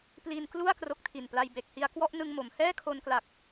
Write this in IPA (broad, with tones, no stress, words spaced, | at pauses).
pli˧nklu˥˩a̯ kro˦˥k̚tʰi˨˩npla˧j be˨˩k̚hi˧a̯ kwɔ˥˩ʔnɯ˧ŋmo˩˦m hɛː˥˩kʰo˧nkla˨˩k̚